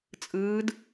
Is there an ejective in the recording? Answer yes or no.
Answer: yes